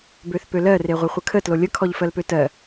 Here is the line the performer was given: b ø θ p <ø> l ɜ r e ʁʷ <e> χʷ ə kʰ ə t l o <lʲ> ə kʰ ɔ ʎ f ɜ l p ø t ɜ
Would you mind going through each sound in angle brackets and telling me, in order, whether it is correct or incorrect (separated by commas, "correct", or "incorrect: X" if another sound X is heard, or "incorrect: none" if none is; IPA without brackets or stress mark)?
correct, correct, correct